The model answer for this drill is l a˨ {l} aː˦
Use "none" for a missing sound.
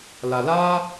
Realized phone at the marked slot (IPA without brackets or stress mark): l